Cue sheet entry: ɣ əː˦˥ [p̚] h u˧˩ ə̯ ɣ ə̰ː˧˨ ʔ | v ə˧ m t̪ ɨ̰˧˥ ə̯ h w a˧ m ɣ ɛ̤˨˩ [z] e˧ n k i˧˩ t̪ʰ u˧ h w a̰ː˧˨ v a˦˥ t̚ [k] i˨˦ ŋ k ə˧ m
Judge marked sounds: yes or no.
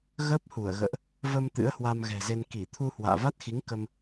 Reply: yes, yes, no

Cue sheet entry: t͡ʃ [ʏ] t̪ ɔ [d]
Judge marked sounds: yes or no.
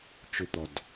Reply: yes, yes

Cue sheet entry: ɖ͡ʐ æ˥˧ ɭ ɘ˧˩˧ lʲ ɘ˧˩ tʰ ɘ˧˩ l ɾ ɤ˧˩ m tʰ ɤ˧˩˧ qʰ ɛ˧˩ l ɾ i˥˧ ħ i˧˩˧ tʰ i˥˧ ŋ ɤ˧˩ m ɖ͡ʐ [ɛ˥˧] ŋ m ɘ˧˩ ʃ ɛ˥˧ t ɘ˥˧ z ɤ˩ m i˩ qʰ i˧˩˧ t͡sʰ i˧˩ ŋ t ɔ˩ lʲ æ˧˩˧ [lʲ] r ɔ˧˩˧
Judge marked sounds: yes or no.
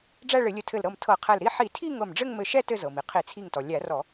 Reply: no, no

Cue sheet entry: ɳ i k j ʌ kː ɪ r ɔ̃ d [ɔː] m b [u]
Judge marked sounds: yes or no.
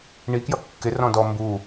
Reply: no, yes

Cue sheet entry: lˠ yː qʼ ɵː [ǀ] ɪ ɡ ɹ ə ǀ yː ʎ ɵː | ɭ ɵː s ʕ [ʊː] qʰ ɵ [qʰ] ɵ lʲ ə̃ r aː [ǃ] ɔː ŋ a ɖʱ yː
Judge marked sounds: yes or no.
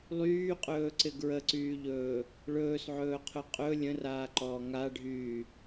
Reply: yes, no, no, yes

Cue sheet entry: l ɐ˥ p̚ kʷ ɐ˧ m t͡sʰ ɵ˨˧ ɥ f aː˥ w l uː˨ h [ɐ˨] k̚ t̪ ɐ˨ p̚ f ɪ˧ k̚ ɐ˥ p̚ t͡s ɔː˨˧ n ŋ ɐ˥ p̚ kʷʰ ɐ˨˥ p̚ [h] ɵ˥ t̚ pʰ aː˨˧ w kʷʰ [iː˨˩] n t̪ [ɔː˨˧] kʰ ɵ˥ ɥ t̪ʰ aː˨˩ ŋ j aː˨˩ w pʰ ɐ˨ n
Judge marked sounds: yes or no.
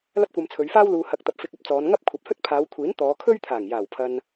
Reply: yes, yes, no, yes

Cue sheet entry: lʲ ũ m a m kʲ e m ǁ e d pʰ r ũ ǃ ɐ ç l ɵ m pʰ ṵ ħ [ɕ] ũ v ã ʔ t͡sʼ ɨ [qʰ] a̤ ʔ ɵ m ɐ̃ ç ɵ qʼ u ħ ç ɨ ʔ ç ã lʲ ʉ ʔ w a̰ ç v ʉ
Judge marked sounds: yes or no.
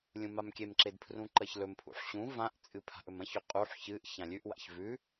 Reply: yes, no

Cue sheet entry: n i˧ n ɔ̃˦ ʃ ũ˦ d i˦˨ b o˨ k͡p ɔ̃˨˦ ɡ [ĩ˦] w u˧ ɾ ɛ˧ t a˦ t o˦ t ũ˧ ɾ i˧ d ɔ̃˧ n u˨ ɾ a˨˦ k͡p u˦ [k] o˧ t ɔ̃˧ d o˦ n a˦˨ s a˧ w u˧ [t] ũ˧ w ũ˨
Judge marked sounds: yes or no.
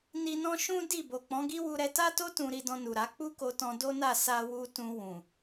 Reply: no, yes, yes

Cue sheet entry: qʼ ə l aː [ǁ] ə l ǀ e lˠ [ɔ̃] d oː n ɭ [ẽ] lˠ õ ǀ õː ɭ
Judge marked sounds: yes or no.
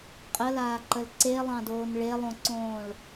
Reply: no, no, no

